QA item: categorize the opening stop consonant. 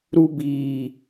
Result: plain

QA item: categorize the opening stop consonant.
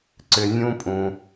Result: click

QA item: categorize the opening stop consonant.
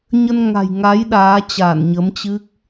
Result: implosive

